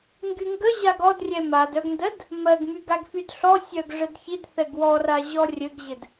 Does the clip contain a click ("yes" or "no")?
no